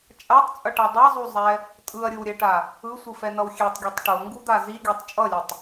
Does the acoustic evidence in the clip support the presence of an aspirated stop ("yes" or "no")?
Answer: no